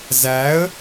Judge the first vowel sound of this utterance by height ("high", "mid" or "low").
low